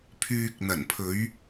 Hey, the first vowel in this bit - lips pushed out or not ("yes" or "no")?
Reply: yes